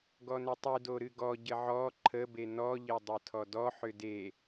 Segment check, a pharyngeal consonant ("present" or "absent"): present